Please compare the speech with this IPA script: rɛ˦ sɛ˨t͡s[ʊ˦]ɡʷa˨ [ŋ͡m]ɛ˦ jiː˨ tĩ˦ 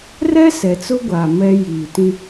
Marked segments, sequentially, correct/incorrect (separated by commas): correct, incorrect